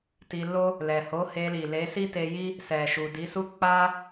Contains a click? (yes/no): no